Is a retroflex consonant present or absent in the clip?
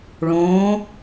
present